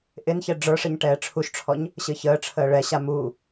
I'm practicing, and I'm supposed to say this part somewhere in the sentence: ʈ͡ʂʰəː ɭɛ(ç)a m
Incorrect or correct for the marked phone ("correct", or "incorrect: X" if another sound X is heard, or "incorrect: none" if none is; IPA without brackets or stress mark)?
incorrect: ɕ